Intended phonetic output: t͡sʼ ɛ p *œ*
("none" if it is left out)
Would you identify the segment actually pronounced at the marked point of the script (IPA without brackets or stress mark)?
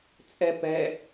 ɛ